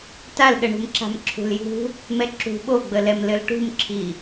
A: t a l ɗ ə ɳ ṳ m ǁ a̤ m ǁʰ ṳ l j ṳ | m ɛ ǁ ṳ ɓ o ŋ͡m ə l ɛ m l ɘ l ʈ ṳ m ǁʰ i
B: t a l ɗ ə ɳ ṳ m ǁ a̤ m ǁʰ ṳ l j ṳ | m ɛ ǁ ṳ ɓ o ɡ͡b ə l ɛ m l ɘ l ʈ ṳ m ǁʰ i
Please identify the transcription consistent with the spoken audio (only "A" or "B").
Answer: B